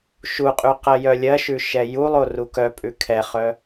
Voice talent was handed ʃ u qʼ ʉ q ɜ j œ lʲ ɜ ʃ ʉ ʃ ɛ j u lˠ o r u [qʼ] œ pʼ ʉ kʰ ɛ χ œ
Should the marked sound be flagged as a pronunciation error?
yes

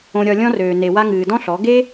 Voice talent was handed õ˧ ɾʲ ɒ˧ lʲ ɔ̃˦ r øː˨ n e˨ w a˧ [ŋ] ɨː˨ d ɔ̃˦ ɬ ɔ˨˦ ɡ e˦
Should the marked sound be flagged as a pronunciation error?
no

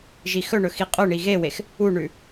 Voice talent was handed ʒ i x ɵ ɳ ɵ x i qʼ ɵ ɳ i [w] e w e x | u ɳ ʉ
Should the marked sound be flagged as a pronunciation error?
yes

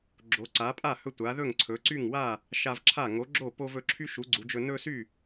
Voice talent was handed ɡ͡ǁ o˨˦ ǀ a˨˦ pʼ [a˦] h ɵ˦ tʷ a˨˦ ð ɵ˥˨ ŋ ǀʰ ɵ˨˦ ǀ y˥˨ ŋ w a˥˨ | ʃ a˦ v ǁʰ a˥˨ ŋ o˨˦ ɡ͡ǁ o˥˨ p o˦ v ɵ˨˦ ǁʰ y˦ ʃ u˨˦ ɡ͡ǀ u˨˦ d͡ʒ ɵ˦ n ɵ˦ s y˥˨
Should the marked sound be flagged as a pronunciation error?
yes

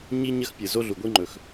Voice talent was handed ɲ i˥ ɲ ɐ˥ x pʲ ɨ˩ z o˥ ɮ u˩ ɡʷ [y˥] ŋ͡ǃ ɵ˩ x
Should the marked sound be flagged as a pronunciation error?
yes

